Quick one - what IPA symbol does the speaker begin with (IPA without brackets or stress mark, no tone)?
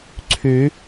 ǀʰ